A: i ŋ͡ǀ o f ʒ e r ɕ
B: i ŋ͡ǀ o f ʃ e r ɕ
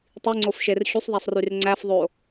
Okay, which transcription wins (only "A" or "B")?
B